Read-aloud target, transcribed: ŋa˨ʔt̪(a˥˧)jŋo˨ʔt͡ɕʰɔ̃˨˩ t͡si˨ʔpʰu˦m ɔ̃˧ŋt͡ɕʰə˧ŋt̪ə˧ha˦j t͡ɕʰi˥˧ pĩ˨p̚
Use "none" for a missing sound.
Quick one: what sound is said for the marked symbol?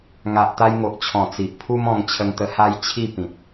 a˧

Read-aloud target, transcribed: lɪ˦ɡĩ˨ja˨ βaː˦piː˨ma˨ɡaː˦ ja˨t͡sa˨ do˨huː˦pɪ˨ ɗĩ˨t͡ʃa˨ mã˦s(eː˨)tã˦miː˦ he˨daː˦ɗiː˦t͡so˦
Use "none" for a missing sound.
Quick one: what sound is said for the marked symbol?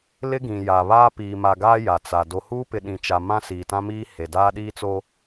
iː˨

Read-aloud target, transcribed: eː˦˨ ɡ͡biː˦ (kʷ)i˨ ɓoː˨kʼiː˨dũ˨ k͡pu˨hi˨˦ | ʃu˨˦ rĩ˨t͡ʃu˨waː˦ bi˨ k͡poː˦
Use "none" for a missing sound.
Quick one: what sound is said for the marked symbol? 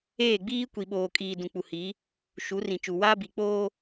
kʷ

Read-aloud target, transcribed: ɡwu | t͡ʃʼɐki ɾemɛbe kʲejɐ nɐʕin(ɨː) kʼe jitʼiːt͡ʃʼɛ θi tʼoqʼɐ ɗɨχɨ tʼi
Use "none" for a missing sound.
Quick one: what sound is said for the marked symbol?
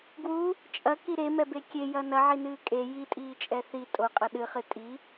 ɨː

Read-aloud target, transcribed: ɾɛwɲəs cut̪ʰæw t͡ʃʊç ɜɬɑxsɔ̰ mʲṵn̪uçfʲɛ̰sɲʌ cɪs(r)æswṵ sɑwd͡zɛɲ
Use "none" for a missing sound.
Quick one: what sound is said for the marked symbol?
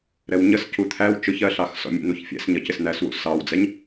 n̪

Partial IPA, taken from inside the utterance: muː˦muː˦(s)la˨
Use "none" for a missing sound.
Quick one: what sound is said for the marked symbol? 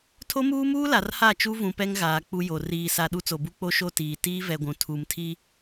none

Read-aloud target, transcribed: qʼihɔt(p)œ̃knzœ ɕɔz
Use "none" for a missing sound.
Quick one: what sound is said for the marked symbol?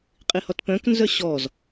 p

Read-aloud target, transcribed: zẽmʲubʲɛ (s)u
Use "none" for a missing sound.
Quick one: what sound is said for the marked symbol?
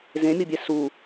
s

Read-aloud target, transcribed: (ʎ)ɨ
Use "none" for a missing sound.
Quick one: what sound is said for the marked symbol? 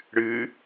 ɽ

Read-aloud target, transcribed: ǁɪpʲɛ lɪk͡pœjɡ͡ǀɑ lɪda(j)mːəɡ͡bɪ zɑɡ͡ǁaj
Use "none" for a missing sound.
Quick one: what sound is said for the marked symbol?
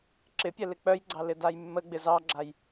j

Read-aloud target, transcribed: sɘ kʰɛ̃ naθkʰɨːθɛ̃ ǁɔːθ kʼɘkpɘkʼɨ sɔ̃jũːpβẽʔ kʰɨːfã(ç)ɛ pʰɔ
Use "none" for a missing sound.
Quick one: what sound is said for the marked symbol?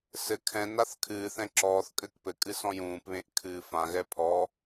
ɣ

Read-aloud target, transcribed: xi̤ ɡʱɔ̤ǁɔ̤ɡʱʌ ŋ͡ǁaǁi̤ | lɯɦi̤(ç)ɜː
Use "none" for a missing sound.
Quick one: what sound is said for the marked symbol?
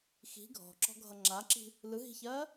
ç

